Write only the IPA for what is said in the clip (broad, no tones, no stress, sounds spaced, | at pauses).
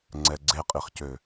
ŋ͡ǀ ɛ ɡ͡ǀ e qʼ i χ c ø